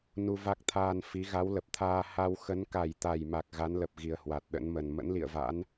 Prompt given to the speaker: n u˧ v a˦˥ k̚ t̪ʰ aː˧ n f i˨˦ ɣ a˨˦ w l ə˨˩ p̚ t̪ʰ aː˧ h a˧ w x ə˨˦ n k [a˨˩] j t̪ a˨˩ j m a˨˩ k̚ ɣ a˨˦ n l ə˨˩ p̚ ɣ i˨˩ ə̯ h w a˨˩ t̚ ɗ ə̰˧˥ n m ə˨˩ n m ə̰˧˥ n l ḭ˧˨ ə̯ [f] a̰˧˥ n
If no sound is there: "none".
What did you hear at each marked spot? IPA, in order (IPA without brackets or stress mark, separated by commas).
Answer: a˨˩, v